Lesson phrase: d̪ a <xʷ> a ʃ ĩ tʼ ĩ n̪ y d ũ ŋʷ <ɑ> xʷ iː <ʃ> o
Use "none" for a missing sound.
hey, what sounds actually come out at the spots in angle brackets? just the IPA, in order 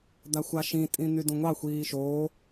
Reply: xʷ, ɑ, ʃ

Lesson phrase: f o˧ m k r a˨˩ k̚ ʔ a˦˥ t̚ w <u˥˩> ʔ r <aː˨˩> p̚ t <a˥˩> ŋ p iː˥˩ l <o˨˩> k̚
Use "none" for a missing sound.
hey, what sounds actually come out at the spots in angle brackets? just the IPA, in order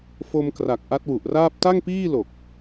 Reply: u˨˩, aː˥˩, a˥˩, o˨˩

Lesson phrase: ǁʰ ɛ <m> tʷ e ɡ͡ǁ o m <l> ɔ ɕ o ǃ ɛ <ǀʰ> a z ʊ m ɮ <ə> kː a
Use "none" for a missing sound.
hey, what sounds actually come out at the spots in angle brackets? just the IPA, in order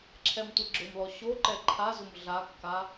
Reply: m, l, ǃʰ, a

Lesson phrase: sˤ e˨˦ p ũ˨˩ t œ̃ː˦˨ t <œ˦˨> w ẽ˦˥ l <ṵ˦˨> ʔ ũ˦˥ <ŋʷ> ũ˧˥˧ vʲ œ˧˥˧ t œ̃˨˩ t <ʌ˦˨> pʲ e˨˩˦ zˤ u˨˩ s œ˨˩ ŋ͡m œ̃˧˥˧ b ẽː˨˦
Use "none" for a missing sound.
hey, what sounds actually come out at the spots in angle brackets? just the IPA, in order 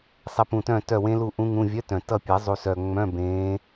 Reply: œ˦˨, u˦˨, ŋ, ʌ˦˨

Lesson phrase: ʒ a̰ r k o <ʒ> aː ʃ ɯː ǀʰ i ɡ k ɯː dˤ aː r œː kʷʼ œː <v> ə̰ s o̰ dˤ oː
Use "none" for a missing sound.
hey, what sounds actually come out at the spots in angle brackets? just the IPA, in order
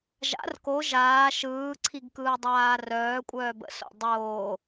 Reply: ʒ, b

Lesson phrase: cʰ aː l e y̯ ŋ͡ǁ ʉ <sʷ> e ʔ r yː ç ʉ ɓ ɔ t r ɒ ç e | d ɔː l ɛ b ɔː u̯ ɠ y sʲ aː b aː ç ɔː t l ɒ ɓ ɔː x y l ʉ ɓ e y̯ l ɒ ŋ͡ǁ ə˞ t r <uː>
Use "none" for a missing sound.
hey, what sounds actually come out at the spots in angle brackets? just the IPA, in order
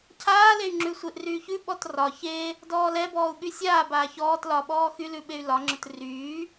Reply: sʷ, yː

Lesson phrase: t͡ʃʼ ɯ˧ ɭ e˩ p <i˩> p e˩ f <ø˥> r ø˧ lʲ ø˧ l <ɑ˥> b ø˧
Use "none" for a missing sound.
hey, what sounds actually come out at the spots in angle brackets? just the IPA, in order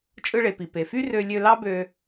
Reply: i˩, y˥, ɑ˥

